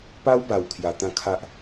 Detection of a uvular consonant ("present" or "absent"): absent